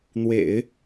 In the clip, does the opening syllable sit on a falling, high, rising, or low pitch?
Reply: low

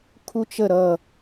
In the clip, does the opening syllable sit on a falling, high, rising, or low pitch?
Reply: high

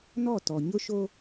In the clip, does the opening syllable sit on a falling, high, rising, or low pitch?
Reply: falling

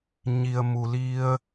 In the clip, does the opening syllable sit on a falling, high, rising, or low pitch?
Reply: low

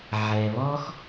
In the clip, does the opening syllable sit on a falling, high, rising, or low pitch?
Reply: low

